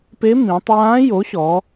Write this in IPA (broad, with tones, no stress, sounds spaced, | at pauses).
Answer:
p e˧˥ m ĩ˩˧ tˤ j ãː˧˥ j o˩˥ ɕ ɔ˩˧